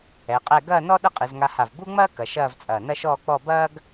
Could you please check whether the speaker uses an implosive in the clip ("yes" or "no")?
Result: yes